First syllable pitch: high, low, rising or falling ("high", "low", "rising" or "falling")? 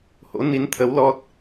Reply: rising